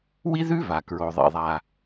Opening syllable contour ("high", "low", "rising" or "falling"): high